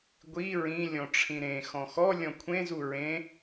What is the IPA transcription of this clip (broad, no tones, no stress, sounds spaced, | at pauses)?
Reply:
ɡʷ i ɹ ĩ lʲ ɔ̃ ʈ͡ʂʰ ĩ ɾ ẽ x ɔ̃ x ɔ lʲ ɔ̃ kʷʰ ẽ z u ɹ ẽ